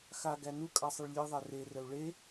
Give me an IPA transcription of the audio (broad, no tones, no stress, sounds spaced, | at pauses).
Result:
x a ɡ æ n u kʼ a sˤ ɘ ɭ lʲ e ðˤ ɛ r e r ə u̯ ɭ e